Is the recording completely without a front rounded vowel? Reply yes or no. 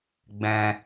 yes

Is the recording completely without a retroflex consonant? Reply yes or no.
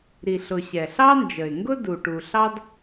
no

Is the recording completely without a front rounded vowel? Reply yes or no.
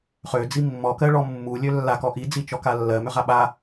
no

